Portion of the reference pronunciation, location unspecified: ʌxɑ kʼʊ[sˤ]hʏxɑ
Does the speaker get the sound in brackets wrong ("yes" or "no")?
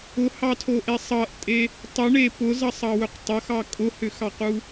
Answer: yes